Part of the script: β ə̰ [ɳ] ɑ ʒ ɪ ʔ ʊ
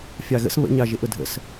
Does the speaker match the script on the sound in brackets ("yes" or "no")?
no